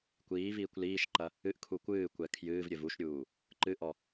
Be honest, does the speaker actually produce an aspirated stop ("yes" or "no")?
yes